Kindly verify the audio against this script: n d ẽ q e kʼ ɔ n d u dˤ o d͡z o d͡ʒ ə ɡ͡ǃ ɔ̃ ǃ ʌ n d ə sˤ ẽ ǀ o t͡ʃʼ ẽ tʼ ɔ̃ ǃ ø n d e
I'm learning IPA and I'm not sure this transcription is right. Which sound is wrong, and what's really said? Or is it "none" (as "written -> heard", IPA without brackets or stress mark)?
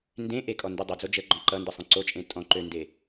q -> ʔ